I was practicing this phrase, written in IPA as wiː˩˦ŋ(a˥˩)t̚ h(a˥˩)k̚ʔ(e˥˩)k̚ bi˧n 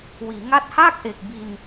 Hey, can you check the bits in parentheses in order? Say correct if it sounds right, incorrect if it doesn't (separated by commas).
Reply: correct, incorrect, incorrect